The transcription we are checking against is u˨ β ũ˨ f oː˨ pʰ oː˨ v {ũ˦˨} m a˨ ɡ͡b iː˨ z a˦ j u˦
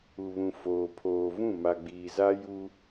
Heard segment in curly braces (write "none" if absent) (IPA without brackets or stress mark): ũ˦˨